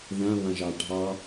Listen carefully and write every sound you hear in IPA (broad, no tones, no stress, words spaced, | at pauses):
ðãβãʒɑ ɖʱɑ